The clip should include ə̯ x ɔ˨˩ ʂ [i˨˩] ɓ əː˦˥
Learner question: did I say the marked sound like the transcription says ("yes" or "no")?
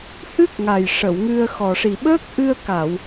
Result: yes